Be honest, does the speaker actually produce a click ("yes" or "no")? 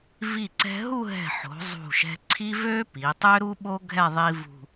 yes